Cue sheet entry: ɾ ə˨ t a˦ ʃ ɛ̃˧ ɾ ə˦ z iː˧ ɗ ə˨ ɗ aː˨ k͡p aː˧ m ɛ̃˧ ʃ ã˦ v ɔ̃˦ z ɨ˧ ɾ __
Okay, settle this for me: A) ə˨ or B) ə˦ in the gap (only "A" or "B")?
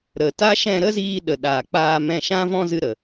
A